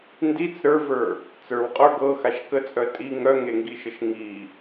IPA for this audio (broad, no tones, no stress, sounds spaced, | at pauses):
n d i t͡s ɾ ə˞ v ə˞ | t͡s ə˞ w qʼ ə˞ ɡ ɤ x a ʃ k ə t͡sʼ œ tʼ i ŋ œ ŋ e ŋ ɡ i ʃ ə ʃ ŋ i